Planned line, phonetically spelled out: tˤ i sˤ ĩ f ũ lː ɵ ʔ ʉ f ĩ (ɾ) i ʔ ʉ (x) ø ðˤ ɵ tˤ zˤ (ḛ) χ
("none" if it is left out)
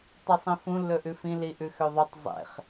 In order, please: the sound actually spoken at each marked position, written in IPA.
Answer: l, x, ḛ

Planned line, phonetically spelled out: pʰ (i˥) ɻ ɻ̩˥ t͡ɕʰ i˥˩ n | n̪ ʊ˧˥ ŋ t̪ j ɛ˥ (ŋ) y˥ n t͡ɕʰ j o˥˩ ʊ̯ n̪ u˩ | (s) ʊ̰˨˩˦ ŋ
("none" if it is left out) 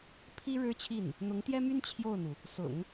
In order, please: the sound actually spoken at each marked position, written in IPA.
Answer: i˥, m, s

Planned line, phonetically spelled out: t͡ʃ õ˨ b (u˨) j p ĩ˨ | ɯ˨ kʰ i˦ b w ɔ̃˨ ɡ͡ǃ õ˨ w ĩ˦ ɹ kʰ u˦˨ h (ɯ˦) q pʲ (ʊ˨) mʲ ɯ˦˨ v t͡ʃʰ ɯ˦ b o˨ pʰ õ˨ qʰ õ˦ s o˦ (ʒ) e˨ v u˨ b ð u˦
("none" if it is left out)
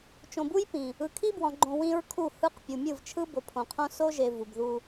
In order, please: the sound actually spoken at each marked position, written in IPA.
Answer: u˦, ɯ˦, u˨, ʒ

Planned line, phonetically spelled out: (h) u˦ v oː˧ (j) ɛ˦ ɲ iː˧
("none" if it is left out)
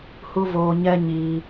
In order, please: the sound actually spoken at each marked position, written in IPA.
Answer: h, ɲ

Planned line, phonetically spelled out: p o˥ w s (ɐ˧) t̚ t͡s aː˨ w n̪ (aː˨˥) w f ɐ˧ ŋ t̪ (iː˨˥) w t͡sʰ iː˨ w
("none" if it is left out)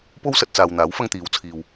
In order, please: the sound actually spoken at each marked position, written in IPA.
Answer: ɐ˧, aː˨˥, iː˨˥

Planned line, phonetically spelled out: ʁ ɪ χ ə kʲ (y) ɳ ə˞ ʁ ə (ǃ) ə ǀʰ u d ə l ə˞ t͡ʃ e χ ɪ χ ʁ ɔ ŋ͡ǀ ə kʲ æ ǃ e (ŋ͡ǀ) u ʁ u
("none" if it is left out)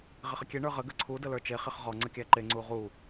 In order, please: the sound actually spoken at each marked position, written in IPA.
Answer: e, ɡ, ŋ͡ǀ

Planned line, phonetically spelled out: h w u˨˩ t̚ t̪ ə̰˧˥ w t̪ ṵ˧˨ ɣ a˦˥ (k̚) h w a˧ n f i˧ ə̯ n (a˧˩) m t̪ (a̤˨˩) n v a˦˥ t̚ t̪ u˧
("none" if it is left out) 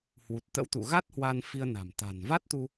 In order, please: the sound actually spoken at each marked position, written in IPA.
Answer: t̚, a̤˨˩, a̤˨˩

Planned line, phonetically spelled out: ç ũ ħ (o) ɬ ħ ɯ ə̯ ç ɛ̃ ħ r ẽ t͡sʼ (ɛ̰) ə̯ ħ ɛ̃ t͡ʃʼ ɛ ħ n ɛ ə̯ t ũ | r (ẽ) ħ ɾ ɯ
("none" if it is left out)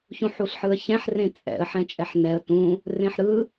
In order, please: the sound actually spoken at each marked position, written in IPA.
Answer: u, ɛ̰, ẽ

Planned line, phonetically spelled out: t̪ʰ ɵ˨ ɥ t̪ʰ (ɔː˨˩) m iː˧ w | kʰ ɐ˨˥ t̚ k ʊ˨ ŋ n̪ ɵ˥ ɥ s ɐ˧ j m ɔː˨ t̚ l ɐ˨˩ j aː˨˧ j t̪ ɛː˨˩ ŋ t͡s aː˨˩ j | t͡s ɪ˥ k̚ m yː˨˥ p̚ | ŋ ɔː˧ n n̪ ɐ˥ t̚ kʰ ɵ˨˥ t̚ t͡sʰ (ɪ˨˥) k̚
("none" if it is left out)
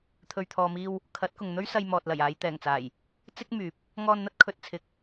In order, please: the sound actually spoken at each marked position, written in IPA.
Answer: ɔː˨, ɪ˨˥

